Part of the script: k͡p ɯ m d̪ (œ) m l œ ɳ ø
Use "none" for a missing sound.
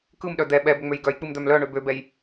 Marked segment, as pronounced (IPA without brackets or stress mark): œ